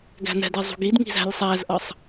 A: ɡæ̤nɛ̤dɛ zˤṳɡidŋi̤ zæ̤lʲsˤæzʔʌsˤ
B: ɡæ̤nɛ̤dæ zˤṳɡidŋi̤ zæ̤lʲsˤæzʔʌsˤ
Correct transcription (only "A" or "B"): A